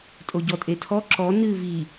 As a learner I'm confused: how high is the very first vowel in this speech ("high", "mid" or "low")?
mid